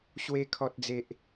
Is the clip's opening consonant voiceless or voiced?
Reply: voiceless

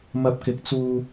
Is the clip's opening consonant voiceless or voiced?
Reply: voiced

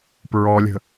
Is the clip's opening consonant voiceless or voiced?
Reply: voiceless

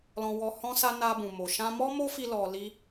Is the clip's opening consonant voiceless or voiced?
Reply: voiced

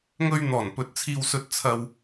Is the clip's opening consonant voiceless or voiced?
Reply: voiced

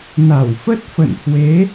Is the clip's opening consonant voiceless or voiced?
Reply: voiced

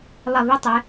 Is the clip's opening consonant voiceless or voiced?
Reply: voiced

